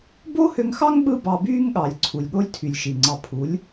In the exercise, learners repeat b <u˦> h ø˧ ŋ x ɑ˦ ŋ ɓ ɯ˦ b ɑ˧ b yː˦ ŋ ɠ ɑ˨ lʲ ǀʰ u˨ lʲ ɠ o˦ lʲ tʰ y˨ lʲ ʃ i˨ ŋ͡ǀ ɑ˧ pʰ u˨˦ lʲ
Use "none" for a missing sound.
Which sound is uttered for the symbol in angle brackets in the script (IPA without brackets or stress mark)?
o˦